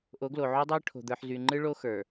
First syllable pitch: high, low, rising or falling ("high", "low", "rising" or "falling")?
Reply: rising